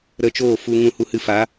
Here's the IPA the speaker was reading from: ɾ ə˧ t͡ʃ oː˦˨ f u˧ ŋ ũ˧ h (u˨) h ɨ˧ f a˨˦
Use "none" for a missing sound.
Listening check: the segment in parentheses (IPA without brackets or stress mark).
u˧